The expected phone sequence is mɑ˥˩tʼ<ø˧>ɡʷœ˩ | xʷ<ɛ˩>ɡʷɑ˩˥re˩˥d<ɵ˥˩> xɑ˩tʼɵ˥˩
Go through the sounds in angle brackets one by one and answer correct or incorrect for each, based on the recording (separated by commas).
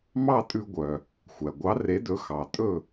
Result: incorrect, incorrect, incorrect